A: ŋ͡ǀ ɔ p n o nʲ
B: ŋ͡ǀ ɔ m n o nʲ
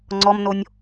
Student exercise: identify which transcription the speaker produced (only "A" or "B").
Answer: B